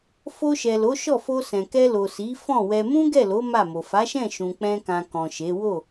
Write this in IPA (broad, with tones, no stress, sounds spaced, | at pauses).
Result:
f o˧ ʃ ɛ˨ l o˨˦ ʃ ɔ˦˨ f o˧ s ɛ̃˨ k ɛ˧ l o˨ s i˨˦ f ɔ̃˦˨ w ɛ˧ m ũ˦ ɡ ɛ˦˨ l o˨˦ m a˦˨ m o˨ f a˨˦ ʃ ɛ̃˦˨ ʃ ũ˧ k͡p ɛ̃˦ k ã˧ k ɔ̃˨ ʃ e˨˦ w o˦˨